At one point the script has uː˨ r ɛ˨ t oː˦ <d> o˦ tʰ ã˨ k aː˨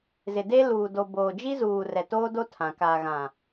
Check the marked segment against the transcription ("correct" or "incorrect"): correct